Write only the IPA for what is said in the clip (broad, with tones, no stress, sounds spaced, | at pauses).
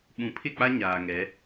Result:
ɓ ũ˨˦ pʰ ɪ˦˨ k͡p a˦ ɲ aː˨ ŋ ɛ˨˦